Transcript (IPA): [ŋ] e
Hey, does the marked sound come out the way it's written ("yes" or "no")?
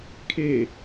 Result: no